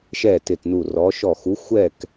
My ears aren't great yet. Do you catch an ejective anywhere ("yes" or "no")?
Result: no